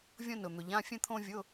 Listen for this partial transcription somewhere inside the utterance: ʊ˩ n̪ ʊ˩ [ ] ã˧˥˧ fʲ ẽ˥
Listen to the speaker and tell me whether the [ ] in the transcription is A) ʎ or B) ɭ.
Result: A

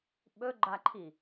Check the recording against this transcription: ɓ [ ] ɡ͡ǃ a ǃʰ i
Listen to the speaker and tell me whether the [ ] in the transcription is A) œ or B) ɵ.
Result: B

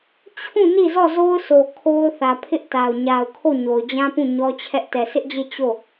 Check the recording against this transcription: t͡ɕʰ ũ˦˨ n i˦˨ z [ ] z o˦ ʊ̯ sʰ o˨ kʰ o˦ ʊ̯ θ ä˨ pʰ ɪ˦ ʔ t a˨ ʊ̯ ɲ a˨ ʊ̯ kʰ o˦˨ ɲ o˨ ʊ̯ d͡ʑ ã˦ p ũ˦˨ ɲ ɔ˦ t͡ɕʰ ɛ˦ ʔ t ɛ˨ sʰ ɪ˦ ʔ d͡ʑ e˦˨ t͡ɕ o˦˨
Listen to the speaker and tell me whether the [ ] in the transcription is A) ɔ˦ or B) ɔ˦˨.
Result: B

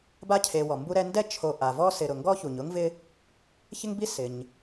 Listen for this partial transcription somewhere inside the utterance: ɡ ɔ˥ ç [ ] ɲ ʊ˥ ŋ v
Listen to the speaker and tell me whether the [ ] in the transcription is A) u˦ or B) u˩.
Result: B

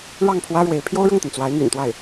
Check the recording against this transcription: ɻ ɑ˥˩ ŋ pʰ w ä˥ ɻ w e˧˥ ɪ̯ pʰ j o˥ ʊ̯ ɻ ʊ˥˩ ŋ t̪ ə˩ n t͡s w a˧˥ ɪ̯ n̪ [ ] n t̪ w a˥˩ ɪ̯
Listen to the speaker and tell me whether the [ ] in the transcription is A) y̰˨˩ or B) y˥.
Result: A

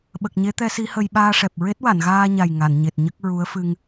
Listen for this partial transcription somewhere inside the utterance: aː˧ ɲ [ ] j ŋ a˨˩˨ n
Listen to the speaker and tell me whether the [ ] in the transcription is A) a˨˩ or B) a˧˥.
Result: A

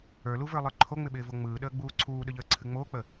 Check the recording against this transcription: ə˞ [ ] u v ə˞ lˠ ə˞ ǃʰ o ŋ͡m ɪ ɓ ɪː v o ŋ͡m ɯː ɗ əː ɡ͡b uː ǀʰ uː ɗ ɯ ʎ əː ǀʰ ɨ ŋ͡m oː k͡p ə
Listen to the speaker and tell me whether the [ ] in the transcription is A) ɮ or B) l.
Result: B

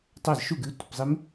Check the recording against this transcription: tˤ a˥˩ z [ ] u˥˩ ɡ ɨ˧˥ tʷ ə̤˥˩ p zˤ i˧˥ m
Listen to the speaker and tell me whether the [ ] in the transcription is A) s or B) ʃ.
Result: B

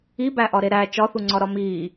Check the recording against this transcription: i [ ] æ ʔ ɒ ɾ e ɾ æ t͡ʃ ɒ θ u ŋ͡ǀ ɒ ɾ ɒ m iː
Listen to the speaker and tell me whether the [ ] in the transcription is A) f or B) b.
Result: B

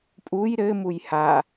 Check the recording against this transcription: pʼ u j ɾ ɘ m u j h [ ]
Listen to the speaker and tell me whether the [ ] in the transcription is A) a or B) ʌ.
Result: A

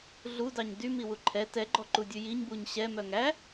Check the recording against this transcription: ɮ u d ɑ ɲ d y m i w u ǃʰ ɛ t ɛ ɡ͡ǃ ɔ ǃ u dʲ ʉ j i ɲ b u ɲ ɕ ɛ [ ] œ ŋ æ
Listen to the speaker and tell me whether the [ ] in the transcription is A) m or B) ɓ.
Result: A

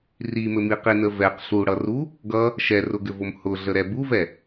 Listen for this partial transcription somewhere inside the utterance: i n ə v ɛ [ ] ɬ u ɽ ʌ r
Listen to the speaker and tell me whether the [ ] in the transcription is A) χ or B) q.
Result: B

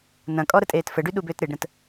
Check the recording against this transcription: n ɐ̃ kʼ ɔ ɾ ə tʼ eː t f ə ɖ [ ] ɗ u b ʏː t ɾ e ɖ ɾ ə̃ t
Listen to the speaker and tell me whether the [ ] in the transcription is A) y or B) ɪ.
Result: A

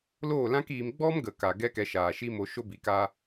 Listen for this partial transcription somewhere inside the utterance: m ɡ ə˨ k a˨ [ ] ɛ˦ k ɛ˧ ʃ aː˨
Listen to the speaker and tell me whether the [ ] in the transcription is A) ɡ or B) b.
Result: A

